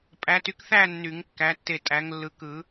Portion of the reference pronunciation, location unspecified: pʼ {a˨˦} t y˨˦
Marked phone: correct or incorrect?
incorrect: æ˨˦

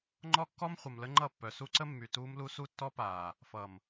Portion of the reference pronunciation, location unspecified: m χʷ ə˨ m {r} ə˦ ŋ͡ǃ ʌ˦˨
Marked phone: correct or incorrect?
incorrect: l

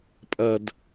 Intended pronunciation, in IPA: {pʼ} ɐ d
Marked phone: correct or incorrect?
correct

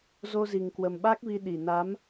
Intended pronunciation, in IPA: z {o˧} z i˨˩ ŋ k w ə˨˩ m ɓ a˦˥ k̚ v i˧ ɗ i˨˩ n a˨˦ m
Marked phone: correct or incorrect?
correct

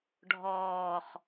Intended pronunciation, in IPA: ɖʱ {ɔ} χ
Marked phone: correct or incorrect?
incorrect: ɔː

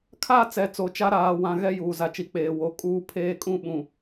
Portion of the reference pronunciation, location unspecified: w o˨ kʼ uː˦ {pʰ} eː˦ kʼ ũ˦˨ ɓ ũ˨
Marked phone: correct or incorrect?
correct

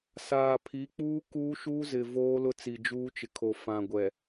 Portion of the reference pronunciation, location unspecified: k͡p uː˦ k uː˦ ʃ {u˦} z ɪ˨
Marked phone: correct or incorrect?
correct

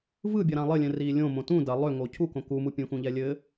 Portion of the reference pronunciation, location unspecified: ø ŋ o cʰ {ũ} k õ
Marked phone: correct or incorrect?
incorrect: u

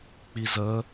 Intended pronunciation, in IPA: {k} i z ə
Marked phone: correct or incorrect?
incorrect: k͡p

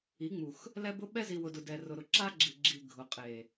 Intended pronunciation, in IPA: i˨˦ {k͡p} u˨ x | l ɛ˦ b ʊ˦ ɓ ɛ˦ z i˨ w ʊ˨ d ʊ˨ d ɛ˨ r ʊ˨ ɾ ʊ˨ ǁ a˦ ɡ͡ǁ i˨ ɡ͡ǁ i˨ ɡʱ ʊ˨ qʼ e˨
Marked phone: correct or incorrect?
incorrect: ŋ͡m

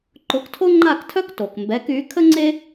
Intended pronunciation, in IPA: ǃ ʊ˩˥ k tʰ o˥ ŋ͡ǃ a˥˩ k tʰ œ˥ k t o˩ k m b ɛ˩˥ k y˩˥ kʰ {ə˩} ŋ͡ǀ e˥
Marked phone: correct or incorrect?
incorrect: ə˥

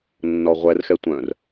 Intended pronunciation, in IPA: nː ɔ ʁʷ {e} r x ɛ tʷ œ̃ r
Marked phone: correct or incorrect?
incorrect: ɛ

